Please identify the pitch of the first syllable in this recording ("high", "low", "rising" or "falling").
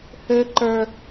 low